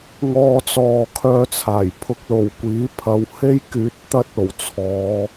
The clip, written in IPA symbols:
ŋɔː˥t͡sɔː˧ kʰœː˧t͡sʰaː˨˩j pʰʊ˧k̚lo˨˩wkʷiː˨˥pʰɐ˨˧w he˥jkyː˨˥t̚ t̪ɐ˧t̚ o˨˩wt͡sʰɔː˨˧

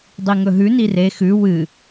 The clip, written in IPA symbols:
dˤiŋɵɦʉ nire xʉ wɨ

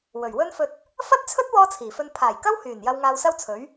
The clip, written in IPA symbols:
wɵ˨˩ɥwɵ˥nfɵ˧t̚ | fɐ˥t̚ t͡sʰɵ˥t̚wɔː˧ t͡sʰiː˨˩fɵ˧n pʰaː˨˩jkɐ˥whyː˨˩n jɐ˧wŋaː˧wsɐ˥wt͡sʰɵ˨˥ɥ

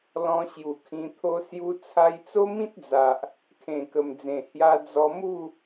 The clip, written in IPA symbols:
lɔ̃˧ɕju˨˩kʰĩ˧ t̪ʰo˦ sju˦ t͡sʰa˧jt͡so˦mĩ˦t̚d͡za˨ʔ | kʰẽ˨˩kə˨˩md͡zẽ˨˩ hja˧d͡zɔ˧mu˥˧

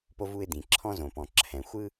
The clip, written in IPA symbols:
po˧vu˧ɪ̯d̪ĩ˩ ǁʰɔ̃˧zõ˩pɔ̃˩ ǁʰɛ̃˩ xʷɯ˧

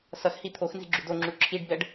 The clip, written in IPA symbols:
sʌx hit̪ʰoxnzi̤ ɡ͡ǁudoŋ͡ǁu ǁʰiɖbɛɖ

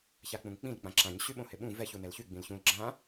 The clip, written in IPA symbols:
çak͡pũŋk͡pĩl k͡pãǁãɲ ɕyɓõhɪɓũ vɛç unɛlçy ɡ͡bĩlçũl ɡ͡ǁã

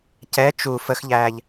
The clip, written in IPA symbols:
cɛ t͡ʃu fəxʎæːʎ

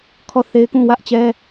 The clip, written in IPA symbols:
kʰɔ˦˨ θe˦ɪ̯kũ˦˨ wä˦ʔt͡ɕɛ˦

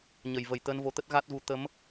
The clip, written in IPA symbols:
ɲə˧˩j və˧˩jt̪əː˧nvo˨˦t̪ə˦˥t̚ ɣa˦˥t̚ɣu˨˦ t̪ə˨˦m

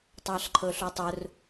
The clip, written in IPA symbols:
tˤɑɬǃʰɵɬotˤɵr

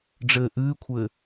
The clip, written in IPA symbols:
ɖ͡ʐɘːʔɨːkʷʰɘː

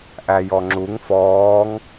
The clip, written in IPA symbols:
ʔæjɔŋ͡ǁuŋ fɔːŋ

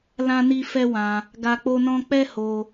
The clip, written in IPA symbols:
lã˦ni˦fɛ˦wã˧ | ɡa˧k͡po˦nɔ̃˦ k͡pɛ˦ho˧

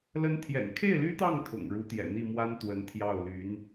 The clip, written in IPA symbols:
lə˧˥nt̪ʰjɛ̰˨˩n kʰe˥˩ɪ̯ly˥t̪ɑ˥˩ŋt̪ʰʊ̰˨˩ŋ ɻu˧˥t̪jɛ̰˨˩n̪i˥˩mwa˥n t̪wə˧˥n t̪ʰjɑ˥˩ʊ̯ ly˧˥n

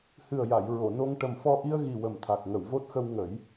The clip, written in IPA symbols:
hɨ˨˩ə̯ja˨˩˨j ɹo˨˩˨no˧ŋ ʈə˨˩mfɔ˧ʔi˧ə̯ ɣi˨˩ wə˨˩mt̪ʰa˨˩k̚ ŋə˨˩˨wvo˦˥t̚xə˧w ŋə˨˩˦j

